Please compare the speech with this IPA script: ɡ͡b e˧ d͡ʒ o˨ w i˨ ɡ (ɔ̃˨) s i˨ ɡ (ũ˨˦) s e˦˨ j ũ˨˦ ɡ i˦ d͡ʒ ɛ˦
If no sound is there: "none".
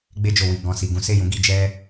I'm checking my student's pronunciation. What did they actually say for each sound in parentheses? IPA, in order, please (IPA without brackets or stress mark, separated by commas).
ɔ̃˨, ũ˨˦